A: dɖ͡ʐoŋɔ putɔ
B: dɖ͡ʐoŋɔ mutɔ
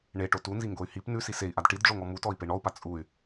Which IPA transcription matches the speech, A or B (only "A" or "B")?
B